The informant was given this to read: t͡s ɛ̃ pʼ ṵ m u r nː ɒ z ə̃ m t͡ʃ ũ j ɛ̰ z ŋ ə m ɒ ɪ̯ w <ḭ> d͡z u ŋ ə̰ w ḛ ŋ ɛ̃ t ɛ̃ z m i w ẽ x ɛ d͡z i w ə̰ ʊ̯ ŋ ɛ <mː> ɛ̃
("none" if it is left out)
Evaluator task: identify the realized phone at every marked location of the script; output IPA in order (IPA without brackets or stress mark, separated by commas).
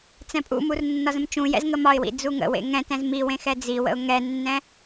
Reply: ḭ, nː